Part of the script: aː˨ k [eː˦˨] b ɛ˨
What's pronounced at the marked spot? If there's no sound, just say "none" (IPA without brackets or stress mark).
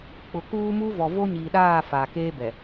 eː˦